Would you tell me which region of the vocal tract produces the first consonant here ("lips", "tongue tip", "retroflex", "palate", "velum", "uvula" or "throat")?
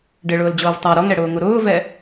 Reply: retroflex